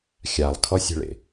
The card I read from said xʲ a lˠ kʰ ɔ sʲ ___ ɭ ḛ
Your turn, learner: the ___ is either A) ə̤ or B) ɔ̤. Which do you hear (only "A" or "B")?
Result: A